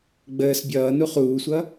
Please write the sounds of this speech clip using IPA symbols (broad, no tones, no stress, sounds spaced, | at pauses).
ɡ͡b əː s bʲ ʌː n u χ uː sʷ ʌ